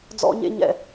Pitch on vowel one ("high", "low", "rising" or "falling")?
high